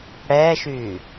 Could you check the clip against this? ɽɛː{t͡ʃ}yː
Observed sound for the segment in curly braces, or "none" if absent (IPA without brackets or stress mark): ʃ